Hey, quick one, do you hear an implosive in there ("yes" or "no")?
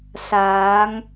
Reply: no